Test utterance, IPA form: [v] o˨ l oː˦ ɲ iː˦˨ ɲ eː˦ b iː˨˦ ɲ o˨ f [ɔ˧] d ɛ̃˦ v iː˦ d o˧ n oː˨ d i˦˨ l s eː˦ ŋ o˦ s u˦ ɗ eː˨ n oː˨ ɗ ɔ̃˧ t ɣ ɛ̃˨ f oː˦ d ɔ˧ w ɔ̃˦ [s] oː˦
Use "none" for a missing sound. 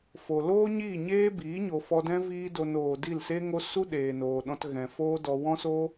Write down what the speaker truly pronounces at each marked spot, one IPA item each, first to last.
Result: f, ɔ˧, s

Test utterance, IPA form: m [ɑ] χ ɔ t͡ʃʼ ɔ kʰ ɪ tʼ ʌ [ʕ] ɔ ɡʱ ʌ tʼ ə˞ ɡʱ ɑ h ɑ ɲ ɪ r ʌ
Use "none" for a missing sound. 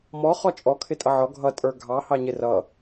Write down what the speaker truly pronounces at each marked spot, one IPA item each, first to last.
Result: ɔ, ʕ

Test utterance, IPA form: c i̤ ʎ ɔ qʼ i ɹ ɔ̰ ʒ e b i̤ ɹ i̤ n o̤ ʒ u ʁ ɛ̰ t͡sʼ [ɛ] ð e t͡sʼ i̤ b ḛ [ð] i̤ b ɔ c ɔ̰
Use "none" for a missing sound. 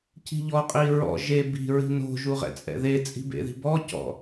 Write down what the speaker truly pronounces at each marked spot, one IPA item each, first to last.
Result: ɛ̰, ð

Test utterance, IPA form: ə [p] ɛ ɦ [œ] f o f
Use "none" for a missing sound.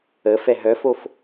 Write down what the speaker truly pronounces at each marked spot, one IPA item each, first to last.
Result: f, œ

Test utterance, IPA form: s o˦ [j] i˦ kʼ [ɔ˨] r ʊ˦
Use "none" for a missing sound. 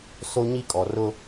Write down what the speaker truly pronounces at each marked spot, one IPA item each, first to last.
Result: ɲ, ɔ˨

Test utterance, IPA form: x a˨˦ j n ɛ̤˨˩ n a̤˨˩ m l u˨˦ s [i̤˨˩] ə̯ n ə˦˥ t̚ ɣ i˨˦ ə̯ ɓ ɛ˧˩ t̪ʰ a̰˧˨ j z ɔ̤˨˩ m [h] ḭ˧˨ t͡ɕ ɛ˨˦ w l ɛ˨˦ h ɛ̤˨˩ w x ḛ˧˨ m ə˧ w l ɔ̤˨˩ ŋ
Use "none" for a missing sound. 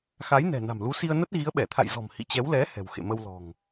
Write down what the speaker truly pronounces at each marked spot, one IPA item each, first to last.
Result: i˧, h

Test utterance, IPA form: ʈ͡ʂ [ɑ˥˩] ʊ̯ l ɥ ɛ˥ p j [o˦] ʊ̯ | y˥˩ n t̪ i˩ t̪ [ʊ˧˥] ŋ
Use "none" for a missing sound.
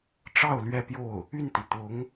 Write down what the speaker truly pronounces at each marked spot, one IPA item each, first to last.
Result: ɑ˥˩, o˥˩, ʊ˧˥

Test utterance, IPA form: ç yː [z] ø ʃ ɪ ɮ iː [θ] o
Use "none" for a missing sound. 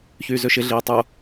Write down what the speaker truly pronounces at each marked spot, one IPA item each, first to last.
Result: z, tˤ

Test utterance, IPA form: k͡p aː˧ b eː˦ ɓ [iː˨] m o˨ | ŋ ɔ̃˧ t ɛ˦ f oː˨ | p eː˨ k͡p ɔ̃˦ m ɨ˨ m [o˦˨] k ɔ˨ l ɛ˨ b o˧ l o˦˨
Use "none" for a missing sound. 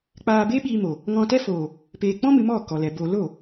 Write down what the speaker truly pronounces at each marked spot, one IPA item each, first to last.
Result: iː˧, ɔ˦˨

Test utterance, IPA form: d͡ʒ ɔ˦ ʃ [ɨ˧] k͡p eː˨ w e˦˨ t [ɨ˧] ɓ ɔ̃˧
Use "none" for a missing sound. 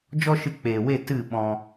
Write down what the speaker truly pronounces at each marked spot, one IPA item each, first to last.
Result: ɨ˧, ɨ˦˨

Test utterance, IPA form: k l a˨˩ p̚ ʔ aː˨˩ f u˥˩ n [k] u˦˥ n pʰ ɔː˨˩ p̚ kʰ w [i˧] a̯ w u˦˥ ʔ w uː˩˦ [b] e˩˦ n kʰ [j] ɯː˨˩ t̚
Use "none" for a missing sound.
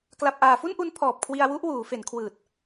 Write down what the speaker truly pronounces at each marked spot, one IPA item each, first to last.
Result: ʔ, i˧, f, w

